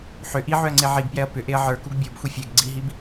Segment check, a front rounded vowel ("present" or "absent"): present